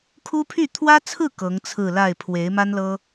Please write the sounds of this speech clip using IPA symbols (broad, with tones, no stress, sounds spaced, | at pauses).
kʰ u˥ pʰ y˥˩ t̪ʰ w ä˥ t͡sʰ ɹ̩˥˩ k ɤ˧˥ ŋ t͡sʰ ɹ̩˥˧ l a˥˩ ɪ̯ pʰ w e˧˥ ɪ̯ m a˥ n l ɤ˥